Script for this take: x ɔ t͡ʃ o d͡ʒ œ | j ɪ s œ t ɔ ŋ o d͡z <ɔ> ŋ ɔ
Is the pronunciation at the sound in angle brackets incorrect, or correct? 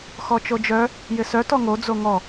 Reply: incorrect: o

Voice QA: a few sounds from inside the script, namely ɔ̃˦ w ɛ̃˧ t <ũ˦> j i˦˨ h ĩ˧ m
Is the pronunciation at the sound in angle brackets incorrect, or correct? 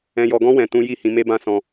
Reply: correct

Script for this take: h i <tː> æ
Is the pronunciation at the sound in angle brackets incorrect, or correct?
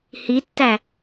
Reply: correct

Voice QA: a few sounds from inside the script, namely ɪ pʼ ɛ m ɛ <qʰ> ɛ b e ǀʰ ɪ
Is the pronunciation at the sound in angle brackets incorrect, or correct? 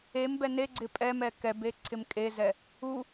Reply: incorrect: k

